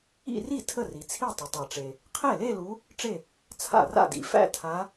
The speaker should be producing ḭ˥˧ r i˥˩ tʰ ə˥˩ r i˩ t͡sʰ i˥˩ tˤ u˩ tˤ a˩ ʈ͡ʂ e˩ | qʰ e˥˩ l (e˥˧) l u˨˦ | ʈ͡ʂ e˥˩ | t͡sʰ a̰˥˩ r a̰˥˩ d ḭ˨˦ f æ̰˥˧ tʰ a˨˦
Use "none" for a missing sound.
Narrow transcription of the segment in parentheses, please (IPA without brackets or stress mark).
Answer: e˥˧